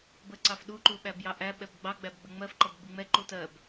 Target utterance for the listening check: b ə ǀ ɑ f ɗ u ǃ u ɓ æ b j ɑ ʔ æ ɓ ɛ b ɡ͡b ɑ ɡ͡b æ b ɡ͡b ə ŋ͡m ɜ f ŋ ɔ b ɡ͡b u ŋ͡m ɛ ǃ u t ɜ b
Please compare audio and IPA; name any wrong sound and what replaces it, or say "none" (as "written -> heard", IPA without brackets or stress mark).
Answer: ŋ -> ǃ